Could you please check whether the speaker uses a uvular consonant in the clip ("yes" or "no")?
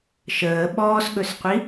yes